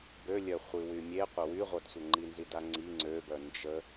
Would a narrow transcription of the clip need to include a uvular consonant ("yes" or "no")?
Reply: yes